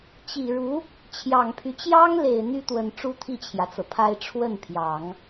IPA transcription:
t͡ɕi˨˩ɻu˧˥ | t͡ɕʰjɑ˨˩ŋpʰy˦ t͡ɕjɑ˥ŋle˨˩ɪ̯ n̪y˥t̪wə˨˩n ʈ͡ʂu˥t̪ʰi˥˩t͡ɕʰjä˩t͡sɤ˩ pʰa˥ɪ̯ ʈ͡ʂʰwə˥˩npʰjɑ˨˩˦ŋ

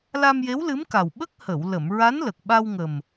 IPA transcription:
la˧mje˧˥wlɨ˧˥mka˨˩w ɓə˦˥k̚hə˨˩˨wlə˨˩˨m ɹa˧˥nlə˨˩k̚ɓa˧wŋə˨˩m

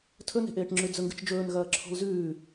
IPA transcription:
tʰɵne̤ʔeːʈŋ͡ǁʉ d͡zɵŋɡɨt͡ʃd͡ʒɵːn ɣɐːǁʰo̤lzʉː

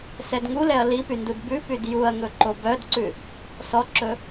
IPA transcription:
sɛdŋulɛɐ̯ lipyndud bʉ pydjuɐ̯ŋɵ ǃobœdǀʉ | sɔǁɵ

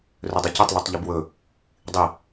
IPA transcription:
rɵdˤicɵtˤ lutˤʎɵbwɵ | dˤi

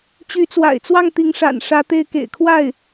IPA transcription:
t͡ɕy˧˥t͡swa̰˨˩ɪ̯t͡swɑ˥˩ŋ t̪i˧˥ŋʂa̰˨˩n ʂä˧˥t̪e˥˩ɪ̯ kḛ˨˩ɪ̯kʰwa˥˩ɪ̯

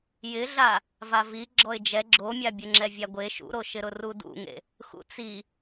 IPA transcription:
jɪɮa | vavi ɡ͡ǁɔɪ̯d͡ʒɛ ɡ͡ǁomʲa bʲʊŋ͡ǁɛvʲaɡʷe ʃṵɾoʃɪɾʊ rudṵŋḛ | xṵt͡si

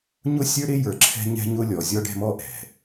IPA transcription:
ɲʊ˦sʲə˞˦ ɾɪ˦jə˞˨ǁʰɛ̤˦ ɲɛ̤˦ɲʊ˦lʲɔ˨ zʲɔ˦ɖɛ̤˦mɔ˦ʔɛ̤˨

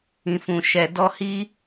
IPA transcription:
ĩ˨fũ˨ ʃɛ˨ dɔ˧hi˦

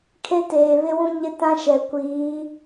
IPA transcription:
kʰe˦teː˨βɪ˦wũ˦ ɲɪ˦tã˦ʃɛ˨ kʷiː˨˦

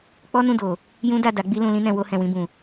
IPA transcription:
k͡pɔ˦nũ˦˨do˨ | jũ˦da˦˨ da˨˦ɡ͡bi˦lũ˧ lĩ˦nɛ̃˧ wo˧hɛ̃˨ wĩ˧bũ˨

